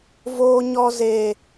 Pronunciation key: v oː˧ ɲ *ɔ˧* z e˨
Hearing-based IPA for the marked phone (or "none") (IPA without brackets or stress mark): ɔ˧